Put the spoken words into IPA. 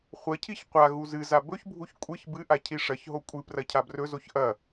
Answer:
χʷ ɐ cʰ i ç qʷ a ɣ u z ɨ z a b ɵ ç bʱ u ç kʷʼ ɨ ç b ɨ ʔ a cʰ i ʂ ɐ ç ɦ o kʷʼ ɨ p r ɐ cʰ a b r ɵ z o ç ʔ ɐ

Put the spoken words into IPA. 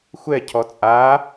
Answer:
xʷ ɛ cʰ ɔ t͡sʼ a

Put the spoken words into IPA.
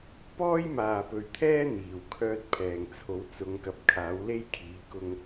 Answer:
p ɔː˥ j m aː˨˩ p ɵ˨˩ ɥ t̪ʰ ɛː˥ n̪ iː˨˩ w kʰ œː˧ t̚ pʰ ɛː˨˩ ŋ t͡sʰ o˨˥ w t͡s ʊ˨˧ ŋ k ɐ˨ p̚ kʰ aː˨˥ w l e˥ j kʰ iː˨˥ k ʊ˥ ŋ

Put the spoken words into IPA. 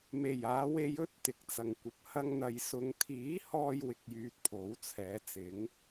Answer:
m e˨˩ j aː˨˧ w e˧ j ɵ˥ t̚ t̪ ɪ˨ k̚ t͡s ɐ˨ ŋ kʷ ɐ˨˥ p̚ h ɐ˥ ŋ n̪ ɐ˧ j s ʊ˨ ŋ t̪ʰ iː˨˥ h ɔː˧ j w ɪ˧ k̚ j yː˧ t̚ pʰ o˨˥ w t͡sʰ ɛː˨˥ t͡s ɪ˨˥ ŋ

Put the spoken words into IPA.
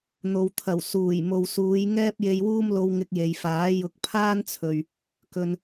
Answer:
n̪ o˨ w t̪ʰ ɐ˨˩ w s uː˨˩ j m o˨ w s uː˨˧ j ŋ ɛː˥ p̚ j e˧ j w uː˥ m l o˧ w ŋ ɪ˧ k̚ j e˨ j f aː˨˥ j ʊ˨˥ k̚ pʰ aː˥ n t͡sʰ ɵ˨ ɥ | k ɵ˧ n

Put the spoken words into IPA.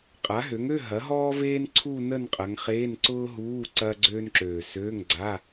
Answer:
qʼ a˩˥ ɦ ø˩˥ ŋ ø˧˥˧ ɦ ɐ˩˥ ɦ ɔː˥ v eː˥ n ǀʰ u˥˧ n ə˥˧ n qʼ ɐ˩˧ ŋ χ eː˧˥˧ n ǀ ʊː˥ ɦ uː˧˥˧ ǀ ɐː˥ ɡ͡ǀ øː˥ n ǁ øː˨˩ s øː˧˥˧ ŋ ɡ͡ǀ a˧˥˧

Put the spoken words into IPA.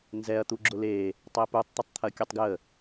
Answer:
n z ɛ ɐ̯ t̪ u ɡ͡ǁ ʊ l e | tˤ e p u tˤ t̪ ʊ tˤ t̪ʰ ɐ kʲ o tˤ ɡ j ə

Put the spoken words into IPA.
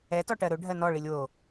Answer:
ɛ t ɔ ʈ ɜ ɾ ɵ ɖʱ ɜ n ɔ ɭ i lʲ w o

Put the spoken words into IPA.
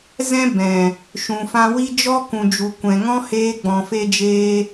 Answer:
z ɛ̃˦ b ɛ̃˨ | ʃ ũ˨ f ã˧ w i˦ d͡ʒ ɔ˦ k ũ˨ d͡ʒ u˨ kʷ ɛ̃˨ ŋ ɔ̃˦ h eː˧ ɡ͡b ɔ̃˨ f e˧ d͡ʒ eː˧

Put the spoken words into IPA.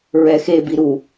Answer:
ɹ ɛ x e b i ɾ u

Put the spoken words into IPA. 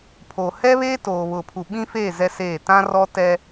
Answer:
pʰ oː˨ h ɛ˦ β eː˦ t oː˨ β ʊ˨ pʰ u˨ ɓ ĩ˦ f eː˦˨ z ɛ˦ s eː˦˨ t ã˦ r ɔ˦ t ɛ˦

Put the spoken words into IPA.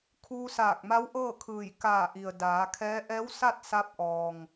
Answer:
kʰ uː˧ s aː˧˩ k̚ m a˧˥ w ʔ ɤː˥˨ kʰ ɯː˧˩ j k aː˧˩ ʔ i˩ ə̯ d aː˩˧ kʰ ɛː˧˥ ʔ ɛː˧˥ w s a˥˨ t̚ s a˧ p̚ ʔ ɔː˩ ŋ

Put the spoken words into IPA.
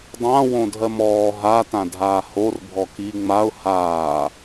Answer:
dˤ ã w õ dʱ ɜ m ɔː ɦ a t ã dʱ aː h o r bʱ ɔ k i ŋ͡m a ʊ̯ h aː

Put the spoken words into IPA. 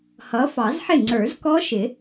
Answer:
h ʌ˨˦ f ɑ˨˩˦ z ħ ɪ˥˩ ŋ͡ǀ ə˞˨˩˦ z k ɔ˦˥ ʃ ɪ˨˩˦

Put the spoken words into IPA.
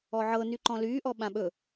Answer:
ɔ ʕ ɤ n y ǃ ɔ̃ l yː ʔ ɔ ɓ ã ɓ ɵ

